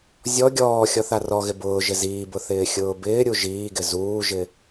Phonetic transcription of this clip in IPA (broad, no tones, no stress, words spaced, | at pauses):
zʲɔ ɡʲɔː xʲɔθarɔɣɪ bʊː ʒɪziːbʊ θɪːxʲʊːbɪːɾʲu ʒiːɡɪ zuːʒɪ